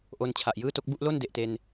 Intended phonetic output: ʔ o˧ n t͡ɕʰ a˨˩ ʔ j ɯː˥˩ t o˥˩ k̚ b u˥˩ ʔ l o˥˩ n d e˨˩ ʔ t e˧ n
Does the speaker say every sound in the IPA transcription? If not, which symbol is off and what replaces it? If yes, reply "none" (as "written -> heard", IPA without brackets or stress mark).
none